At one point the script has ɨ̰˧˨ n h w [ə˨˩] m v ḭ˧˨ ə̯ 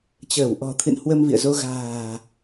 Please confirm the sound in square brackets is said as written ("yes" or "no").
no